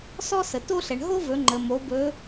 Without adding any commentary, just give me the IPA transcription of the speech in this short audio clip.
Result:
sɔ˥sə˩ to˥ɬɛ˩ɳ ɦo˥vɵ˩˧ŋ͡ǃə˩mo˩˧ bɵ˧˥

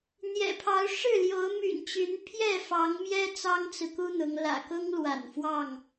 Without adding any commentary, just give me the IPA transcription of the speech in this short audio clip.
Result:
n̪jɛ̰˨˩pʰɑ˨˦ʊ̯ ʂɻ̩˥˨ljo˨˦ʊ̯ my̰˨˩nt͡ɕy˨˦n pʰjɛ˥˨fɑ˨˦ŋmjɛ˦ t͡sɑ˦ŋt͡sɹ̩˨ku˦n̪ʊ˨˦ŋ lä̰˨˩kʊ˦ŋlwa̰˨˩n fwɑ˥˨ŋ

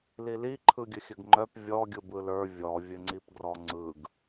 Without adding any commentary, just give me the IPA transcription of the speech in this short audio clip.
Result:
lili ǃʰɯɡʲɘxʲɘɡŋ͡ǃœp vʲɔ ɡʲɯbɯlə˞ vʲɔ vʲɘŋ͡ǀipɡrɔŋ͡ǀɯɡ

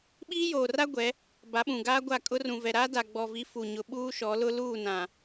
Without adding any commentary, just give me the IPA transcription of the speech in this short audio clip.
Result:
ɓiː˦joː˨ra˦ ɡʷɛ˨˦ | ba˨˦ɓũ˨ɡaː˦ ɡʷa˦˨kʼʊ˦ rũ˨vɛ˨ɾaː˦ da˨ɡ͡bɔ˨vi˨˦ fu˨ɲʊ˨ ɓuː˦ʃɔ˨˦lʊ˦ luː˦˨nã˨

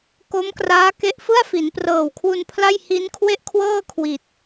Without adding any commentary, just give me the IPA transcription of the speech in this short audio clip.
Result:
ko˦˥mkraː˦˥ke˦˥ʔfɯ˥˩a̯ fi˩˦nprɤː˨˩wkʰwu˧n pʰla˥˩j hi˦˥n kʰwe˥˩ʔkʰwɤː˥˩ kʰwi˨˩t̚

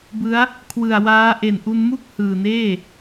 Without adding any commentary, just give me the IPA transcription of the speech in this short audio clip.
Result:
bɯ˦˥a̯ | kʰwɯ˨˩a̯waː˦˥ ʔe˨˩nʔu˧n mu˥˩k̚ hɯː˨˩neː˥˩

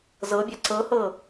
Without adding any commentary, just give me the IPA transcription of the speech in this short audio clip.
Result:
zɤbʲa ǀɤhɤ

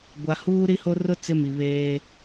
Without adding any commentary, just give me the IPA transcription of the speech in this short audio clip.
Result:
ɡʷa˨huː˦ɾi˦ho˦ rʊ˦ t͡sɪ˦mi˨βeː˦

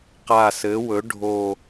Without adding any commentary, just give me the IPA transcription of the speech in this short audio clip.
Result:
qa˨˩sɘ˩˧wɵ˩˧ ɖʱo˨˩

